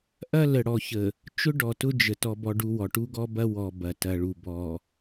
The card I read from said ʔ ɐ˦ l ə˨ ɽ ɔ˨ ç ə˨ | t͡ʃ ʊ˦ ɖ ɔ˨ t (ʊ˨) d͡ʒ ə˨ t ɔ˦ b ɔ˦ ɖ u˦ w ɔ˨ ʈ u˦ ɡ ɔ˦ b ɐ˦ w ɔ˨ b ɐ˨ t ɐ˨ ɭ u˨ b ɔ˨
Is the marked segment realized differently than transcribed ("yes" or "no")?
yes